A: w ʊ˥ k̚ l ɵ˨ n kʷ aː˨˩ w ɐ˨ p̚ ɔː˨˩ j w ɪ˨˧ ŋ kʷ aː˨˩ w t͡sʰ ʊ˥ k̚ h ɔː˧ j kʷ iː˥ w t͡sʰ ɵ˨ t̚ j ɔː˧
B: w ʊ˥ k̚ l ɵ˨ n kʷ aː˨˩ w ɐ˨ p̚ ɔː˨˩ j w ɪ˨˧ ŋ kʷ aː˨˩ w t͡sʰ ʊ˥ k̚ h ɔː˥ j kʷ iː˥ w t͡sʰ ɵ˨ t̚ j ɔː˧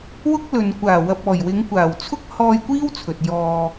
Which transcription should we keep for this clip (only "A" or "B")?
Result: A